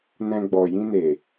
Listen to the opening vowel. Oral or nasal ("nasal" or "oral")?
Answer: nasal